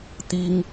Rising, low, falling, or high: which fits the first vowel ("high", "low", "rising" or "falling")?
high